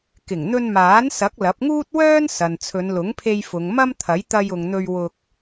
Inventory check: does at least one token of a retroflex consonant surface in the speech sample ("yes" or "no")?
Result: no